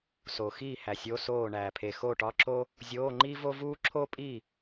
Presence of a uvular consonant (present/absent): absent